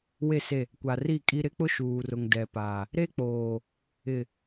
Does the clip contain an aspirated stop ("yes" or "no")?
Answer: no